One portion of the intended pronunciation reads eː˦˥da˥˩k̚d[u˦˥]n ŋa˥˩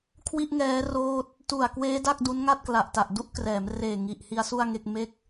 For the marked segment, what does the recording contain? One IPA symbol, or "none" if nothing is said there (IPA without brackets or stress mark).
u˦˥